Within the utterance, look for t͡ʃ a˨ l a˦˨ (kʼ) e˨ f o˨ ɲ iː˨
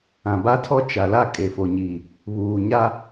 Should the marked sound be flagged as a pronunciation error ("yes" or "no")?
no